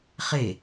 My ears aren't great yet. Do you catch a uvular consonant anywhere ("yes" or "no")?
yes